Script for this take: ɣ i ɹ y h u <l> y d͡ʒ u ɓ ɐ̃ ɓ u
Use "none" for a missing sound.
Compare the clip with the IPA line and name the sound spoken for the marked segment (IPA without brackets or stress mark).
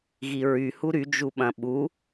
ɾ